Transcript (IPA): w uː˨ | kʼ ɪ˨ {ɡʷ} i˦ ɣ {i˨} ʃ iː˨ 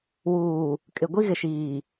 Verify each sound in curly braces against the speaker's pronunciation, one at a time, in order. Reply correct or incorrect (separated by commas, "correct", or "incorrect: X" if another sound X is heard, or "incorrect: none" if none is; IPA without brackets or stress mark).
correct, incorrect: ɪ˨